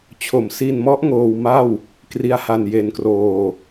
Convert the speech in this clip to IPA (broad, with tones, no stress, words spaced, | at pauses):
t͡ɕʰo˩˦msi˧nmɔ˦˥ʔ ŋoː˧wma˥˩w | kri˦˥a̯ha˧nje˧nkroː˧